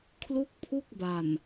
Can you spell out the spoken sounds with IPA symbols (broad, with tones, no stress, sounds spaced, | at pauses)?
kʰ l u˥˩ k̚ pʰ u˥˩ k̚ b a˨˩ n